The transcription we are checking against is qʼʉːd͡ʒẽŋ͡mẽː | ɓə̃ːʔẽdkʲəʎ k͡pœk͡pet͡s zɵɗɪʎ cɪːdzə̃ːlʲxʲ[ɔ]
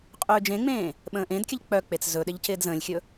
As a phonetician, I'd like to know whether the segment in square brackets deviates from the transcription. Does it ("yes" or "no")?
yes